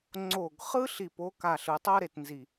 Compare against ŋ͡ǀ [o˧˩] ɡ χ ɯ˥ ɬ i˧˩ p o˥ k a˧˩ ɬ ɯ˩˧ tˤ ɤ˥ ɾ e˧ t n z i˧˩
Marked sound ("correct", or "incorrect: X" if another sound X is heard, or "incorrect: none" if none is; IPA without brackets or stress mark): correct